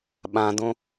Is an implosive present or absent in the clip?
present